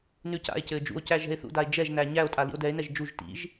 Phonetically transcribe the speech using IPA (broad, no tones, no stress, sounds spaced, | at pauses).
n ʉ c a̰ e̯ c ɘː d͡ʒ ṵ o̯ c æ ʒ ɛ̤ e̯ θ ṵ d a e̯ d͡ʒ ɛ ʒ n æ ɲ æ o̯ tʼ a l ḭ o̯ d ɛ e̯ n ɛ ʒ d͡ʒ u ʒ t ḭ ʒ